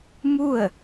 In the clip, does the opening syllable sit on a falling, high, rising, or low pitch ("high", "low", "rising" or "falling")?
falling